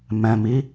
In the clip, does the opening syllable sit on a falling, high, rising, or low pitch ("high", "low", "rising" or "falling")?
low